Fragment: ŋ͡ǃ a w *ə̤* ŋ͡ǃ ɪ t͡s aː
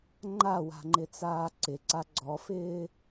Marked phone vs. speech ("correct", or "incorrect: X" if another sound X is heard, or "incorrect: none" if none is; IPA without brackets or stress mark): incorrect: a̤